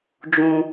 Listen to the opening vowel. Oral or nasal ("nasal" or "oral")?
nasal